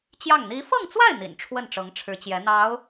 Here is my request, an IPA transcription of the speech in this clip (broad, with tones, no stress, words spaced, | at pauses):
t͡ɕjɑ˥˩ŋ n̪i˧˥fɤ˥˧ŋt͡swa˥˩ɪ̯ n̪ḭ˨˩nʈ͡ʂʰwə˥˩n ʈ͡ʂɤ˧˥ŋʈ͡ʂʰɻ̩˧˥t͡ɕjɛ˧˥ n̪ɑ˧˥ʊ̯